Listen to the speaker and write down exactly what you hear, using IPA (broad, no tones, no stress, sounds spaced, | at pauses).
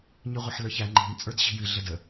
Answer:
ɲ ɨ ʁʷ ɐ ħ l ə˞ ç æ ŋ͡ǃ i̤ m t͡sʼ ə˞ d ɕ i̤ j ɨ ɮ ə d ə